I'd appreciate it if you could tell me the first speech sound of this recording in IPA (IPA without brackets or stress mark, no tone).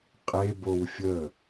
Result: qʼ